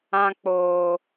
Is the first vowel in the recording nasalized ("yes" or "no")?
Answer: yes